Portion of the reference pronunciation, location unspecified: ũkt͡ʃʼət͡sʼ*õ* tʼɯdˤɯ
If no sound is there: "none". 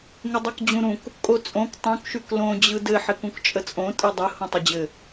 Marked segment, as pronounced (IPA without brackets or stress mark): õ